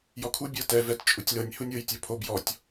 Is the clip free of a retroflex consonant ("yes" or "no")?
yes